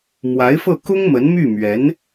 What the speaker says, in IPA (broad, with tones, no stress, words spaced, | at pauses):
mwa˧˥ɪ̯fɤ˥˩ kʊ˥ŋmə˧˥nmy˥˩mɥɛ˧˥n